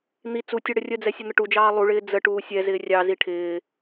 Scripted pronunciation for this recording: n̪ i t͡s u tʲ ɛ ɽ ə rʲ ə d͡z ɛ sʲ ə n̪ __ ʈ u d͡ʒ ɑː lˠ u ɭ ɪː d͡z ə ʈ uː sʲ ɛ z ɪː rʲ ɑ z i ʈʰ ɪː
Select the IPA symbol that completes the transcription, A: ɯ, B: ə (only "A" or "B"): B